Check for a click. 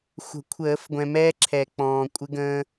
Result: present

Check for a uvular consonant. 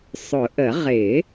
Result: present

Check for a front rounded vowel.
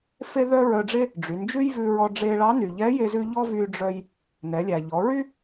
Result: present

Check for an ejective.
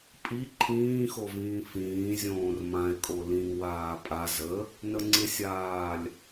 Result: present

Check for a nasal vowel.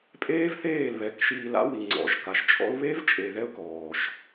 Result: absent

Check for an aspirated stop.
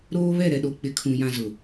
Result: present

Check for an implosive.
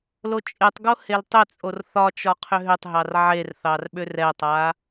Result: present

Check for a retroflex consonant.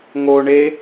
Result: present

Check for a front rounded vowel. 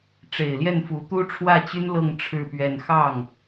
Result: present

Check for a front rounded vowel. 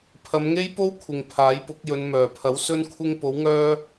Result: present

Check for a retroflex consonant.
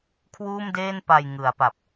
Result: absent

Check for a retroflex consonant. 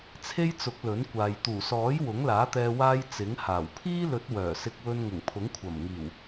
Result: absent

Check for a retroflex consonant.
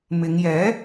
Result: absent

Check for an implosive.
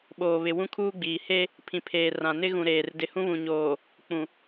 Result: present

